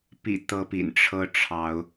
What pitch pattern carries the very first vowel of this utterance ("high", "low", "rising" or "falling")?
low